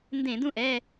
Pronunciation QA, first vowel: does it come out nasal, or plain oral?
nasal